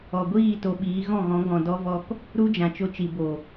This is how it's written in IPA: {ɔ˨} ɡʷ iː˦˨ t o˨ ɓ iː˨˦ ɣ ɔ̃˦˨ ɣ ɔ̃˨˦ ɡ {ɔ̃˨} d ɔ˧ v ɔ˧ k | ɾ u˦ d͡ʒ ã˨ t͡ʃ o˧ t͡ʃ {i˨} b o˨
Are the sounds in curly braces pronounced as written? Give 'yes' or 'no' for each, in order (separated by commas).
yes, yes, yes